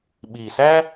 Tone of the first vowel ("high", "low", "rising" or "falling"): low